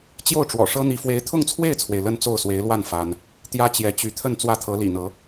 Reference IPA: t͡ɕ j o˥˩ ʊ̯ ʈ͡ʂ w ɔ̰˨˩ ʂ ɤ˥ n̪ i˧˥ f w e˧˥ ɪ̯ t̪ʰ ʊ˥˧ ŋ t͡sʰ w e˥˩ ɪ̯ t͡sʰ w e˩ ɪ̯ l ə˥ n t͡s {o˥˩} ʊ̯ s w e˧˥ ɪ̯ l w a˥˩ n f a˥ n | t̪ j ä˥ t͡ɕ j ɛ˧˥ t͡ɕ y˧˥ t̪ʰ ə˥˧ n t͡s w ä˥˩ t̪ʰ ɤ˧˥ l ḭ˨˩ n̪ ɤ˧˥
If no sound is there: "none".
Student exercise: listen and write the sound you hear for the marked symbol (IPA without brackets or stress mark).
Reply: o˥˩